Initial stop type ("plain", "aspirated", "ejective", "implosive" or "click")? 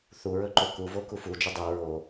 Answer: click